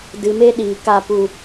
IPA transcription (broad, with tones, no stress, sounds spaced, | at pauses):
d ɨ˨ m e˧ ɗ iː˨ k a˧ p u˧